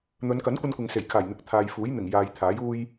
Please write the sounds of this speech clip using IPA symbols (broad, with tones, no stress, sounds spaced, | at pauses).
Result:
n̪ ɵ˨˧ n k ɐ˨˥ n kʷ ɐ˧ n kʷ ɪ˨ ŋ s e˨˩ j kʰ aː˨˩ j n̪ ɪ˨˥ k̚ t̪ʰ aː˨ j f uː˨˥ j n̪ ɪ˨˩ ŋ j aː˨ j t̪ʰ aː˨˥ j uː˥ j